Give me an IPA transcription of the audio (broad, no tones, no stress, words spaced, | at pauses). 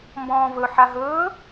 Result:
mbɔ̃ːvɵ ħaɦɵː